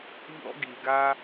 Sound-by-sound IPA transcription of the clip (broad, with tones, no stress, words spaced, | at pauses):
ʎɔ̰˦ɡi˨ɡa˦